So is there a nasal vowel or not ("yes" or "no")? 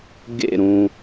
yes